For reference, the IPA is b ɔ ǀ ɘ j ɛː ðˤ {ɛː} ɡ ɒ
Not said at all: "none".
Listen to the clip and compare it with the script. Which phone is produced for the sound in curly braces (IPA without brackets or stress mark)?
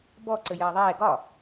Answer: ɛː